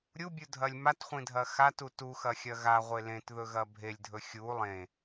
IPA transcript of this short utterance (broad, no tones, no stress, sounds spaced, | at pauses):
ɾʲ u bʲ u dʱ ɐ lʲ m a t χʷ ĩ dʱ ɐ x a t u t u x ɐ xʲ ɐ ɣ a ʁʷ e l ẽ t ð ɵ ɣ ɐ bʱ e lʲ dʱ ɵ xʲ u lˠ ẽ